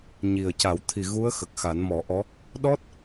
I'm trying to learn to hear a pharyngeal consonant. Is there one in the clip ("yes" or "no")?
no